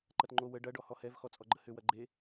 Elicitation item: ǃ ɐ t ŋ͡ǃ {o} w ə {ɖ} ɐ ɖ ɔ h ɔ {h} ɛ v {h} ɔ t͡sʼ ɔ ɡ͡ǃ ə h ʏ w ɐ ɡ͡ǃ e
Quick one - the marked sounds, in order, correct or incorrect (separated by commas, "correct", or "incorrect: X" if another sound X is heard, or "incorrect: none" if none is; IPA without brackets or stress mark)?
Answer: correct, correct, correct, incorrect: x